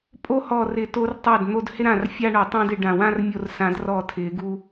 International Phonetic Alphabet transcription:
pʼ o˦ h ɔ˧˩ r ɪ˨˩˦ t o˦ r tˤ a˥˩ d n̪ o˦ d h ɪ˦ ɾ ã˧˩ r fʲ a˦ ɳ o˨˩˦ tˤ ã˦ d ɪ˨˩˦ ɖ ã˧˩ w ã˦ r mʲ o˧˩ r s ã˨˩˦ d r ɔ˧˩ tʰ ɪ˨˩˦ ɡ u˦

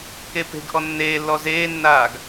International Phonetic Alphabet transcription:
k e p e̤ ɡ ʔ ɔ nː eː lː ɔ z eː nː aː ɡ

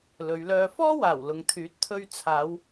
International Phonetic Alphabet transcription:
l ɵ˨˧ ɥ l œː˧ f ɔː˥ w aː˨˩ w l ʊ˨ ŋ t̪ʰ yː˨˥ t̚ t̪ʰ ɵ˧ ɥ t͡sʰ aː˨˧ w

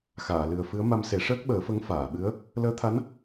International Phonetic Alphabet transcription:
x aː˨˩˨ l ɨ˨˩ ə̯ f ɨ˧˥ ə̯ m a˧ m s e˨˩˦ ʂ əː˦˥ k̚ ɓ əː˨˩˦ f ə˧˥ ŋ f aː˨˩˨ ɓ ɨ˧˥ ə̯ | l əː˧˥ t̪ʰ a˧˥ n

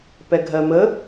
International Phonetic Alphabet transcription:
p ɛ ɡʱ ɜ m ə

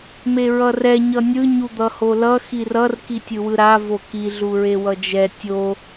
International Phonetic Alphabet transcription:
m e ɹ ʌ r ɛ ɲ ʌ nʲ ɯ ɲ u d̪ ʌ h o l ʌ x i r ʌ r k i tʲ ɯ w ɯ ɾ a v o k i ɮ u ɹ e w ʌ d͡ʒ ɛ tʲ o

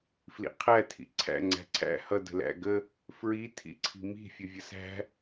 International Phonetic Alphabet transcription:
f l ḭ qʰ æ tʰ ḭ ǀʰ æ̰ ŋ͡ǀ æ̤ ǀʰ æ̰ h ʌ d ə̤ l æ̰ ɡ ə | f ɹ i tʰ ḭ ǀʰ i̤ m i̤ fʲ ə vʲ ə s æ̤

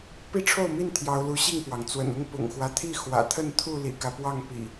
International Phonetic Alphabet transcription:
p i˦ ʈ͡ʂʰ o˥˨ ʊ̯ m i˥˨ n t̪ʰ j ɑ˨˦ ʊ̯ l u˨˦ ɕ i˥˨ ŋ p w ɑ˩ ŋ t͡s w ə̰˨˩ n ʊ˦ ŋ p ʊ̰˨˩ ŋ x w ä˦ t̪ʰ i˥˨ x w ä̰˨˩ t̪ʰ ə˥˨ n t̪ʰ u˥˨ l ḭ˨˩ k ä˦ p w ɑ˥˨ ŋ p ḭ˨˩

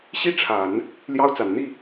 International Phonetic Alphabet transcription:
ɕ i˥˩ ʈ͡ʂʰ a˨˩˦ n | l j ɑ˥ ʊ̯ t͡s a˨˩ n n̪ i˥˩

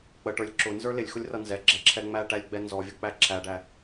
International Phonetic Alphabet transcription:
k͡p ə ʈ ə˞ lʲ ǁ ʊ n z ə˞ l ɪ lʲ x ʊ lʲ r ʌ n z ɛ ɡ͡ǁ ɛ ǁʰ ɛ ŋ͡m æ ʈ æ lʲ ɡ͡b ɛ n z ɔ vʲ ʊ k͡p æ ǁʰ æ ɖ æ

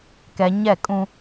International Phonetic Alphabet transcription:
k ɛ˨ ɲ ɛ˦˨ kʼ ũ˦

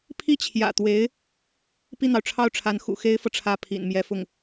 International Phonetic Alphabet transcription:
pʰ i˥˩ t͡ɕʰ j ä̰˨˩ t̪ w e˧˥ ɪ̯ | p i˥˩ n̪ ɑ˩ ʊ̯ ʈ͡ʂʰ ɑ˥˩ ʊ̯ ʈ͡ʂʰ a˧˥ n x ṵ˨˩ x e˥ ɪ̯ f ɤ˨ ʈ͡ʂʰ ä˥˩ pʰ ḭ˨˩ n m j ɛ˧˥ f ʊ˥˩ ŋ

